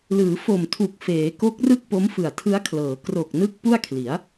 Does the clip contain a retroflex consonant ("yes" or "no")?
no